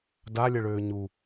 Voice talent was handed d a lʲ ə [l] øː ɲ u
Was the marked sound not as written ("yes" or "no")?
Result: yes